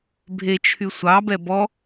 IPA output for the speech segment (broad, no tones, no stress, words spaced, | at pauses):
bʱet͡ʃʰy sʷɑbɛ bɔ